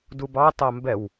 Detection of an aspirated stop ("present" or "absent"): absent